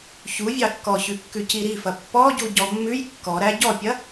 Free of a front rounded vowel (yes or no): yes